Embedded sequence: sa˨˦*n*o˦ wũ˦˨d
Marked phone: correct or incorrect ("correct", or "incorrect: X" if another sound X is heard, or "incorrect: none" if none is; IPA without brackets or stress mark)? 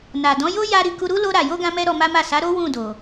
incorrect: ɾ